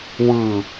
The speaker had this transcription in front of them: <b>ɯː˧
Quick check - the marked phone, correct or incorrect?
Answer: incorrect